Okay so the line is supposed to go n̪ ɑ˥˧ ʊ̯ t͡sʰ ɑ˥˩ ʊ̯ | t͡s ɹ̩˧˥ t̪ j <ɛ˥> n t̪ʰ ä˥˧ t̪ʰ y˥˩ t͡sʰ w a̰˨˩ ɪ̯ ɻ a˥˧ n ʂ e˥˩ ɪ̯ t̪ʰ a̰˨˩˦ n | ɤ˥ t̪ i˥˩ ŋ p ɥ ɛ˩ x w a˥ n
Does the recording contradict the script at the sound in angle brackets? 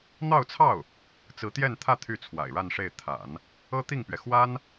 yes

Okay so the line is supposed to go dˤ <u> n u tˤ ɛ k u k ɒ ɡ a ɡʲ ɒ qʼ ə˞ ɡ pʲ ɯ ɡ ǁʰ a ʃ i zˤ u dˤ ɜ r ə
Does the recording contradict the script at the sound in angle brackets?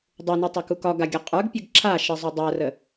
no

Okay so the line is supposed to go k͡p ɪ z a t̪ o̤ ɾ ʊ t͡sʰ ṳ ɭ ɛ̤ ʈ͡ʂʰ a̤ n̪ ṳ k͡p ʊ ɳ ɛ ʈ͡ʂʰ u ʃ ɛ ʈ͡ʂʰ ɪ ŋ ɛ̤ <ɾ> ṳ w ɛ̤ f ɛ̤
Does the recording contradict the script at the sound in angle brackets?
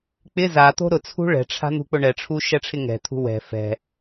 yes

